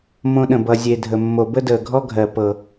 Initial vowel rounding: rounded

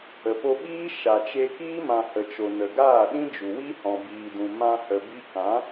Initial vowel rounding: unrounded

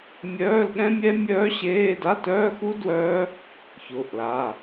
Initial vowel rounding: rounded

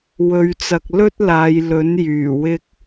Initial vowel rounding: rounded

